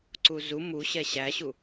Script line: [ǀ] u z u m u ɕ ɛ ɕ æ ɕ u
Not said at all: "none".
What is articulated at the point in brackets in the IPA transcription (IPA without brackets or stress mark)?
ǀ